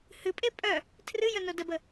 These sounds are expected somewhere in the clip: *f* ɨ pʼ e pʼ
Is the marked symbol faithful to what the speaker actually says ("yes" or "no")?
no